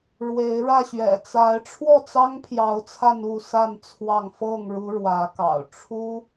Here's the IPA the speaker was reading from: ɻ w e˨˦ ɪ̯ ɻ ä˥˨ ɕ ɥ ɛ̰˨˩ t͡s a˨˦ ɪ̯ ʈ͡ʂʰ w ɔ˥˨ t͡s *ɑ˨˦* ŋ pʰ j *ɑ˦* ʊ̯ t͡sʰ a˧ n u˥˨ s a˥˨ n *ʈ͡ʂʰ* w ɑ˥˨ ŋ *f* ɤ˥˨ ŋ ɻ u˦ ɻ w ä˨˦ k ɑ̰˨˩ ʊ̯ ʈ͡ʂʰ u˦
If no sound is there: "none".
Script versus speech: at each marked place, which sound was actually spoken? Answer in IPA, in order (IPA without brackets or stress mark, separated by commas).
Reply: ɑ˦, ɑ˨˦, t͡sʰ, f